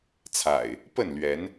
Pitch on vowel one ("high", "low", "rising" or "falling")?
low